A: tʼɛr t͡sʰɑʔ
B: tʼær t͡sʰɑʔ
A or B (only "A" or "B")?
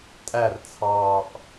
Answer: B